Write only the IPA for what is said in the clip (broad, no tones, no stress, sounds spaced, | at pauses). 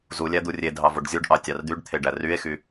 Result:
z u lʲ æ d̪ u rʲ e dʱ ɑ v o ɖ zʲ u ɖ ʔ ɑ tʲ ɑ r d̪ y ɖ t̪ʰ e ɖ æ r y e̯ x y